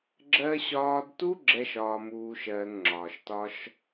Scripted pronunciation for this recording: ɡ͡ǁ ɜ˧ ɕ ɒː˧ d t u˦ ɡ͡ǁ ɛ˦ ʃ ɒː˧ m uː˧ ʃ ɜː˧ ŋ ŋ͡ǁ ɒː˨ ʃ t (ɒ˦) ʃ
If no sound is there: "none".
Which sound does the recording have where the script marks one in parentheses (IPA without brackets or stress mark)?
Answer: ɒ˦